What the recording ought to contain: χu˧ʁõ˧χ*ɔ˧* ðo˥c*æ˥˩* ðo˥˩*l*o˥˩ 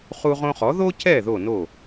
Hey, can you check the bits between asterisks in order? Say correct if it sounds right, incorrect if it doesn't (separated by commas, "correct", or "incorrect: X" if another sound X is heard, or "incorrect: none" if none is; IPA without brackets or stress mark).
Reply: incorrect: ɔ˩˥, incorrect: ɛ˥˩, incorrect: n